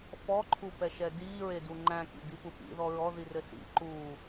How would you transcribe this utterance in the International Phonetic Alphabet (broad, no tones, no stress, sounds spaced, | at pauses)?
f ɔ ǃʰ u p ɛ ʃ ɛ d iː ɹ e d u ŋ͡ǃ æ̃ k ḭ d i p u p ḭ ð ɔ ɹ ɔ ð i r ɘ s ḭ ǃ uː